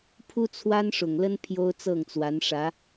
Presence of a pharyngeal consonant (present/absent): absent